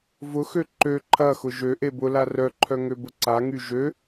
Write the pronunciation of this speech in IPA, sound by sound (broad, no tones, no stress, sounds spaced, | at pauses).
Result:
v ʊ x ø ǃ ø ǃʰ ɐ x ʊ ʒ ø ʔ e b ʊ l a r œ ǃʰ œ ŋ ø b ʊ ǀ a ŋ y ʒ ø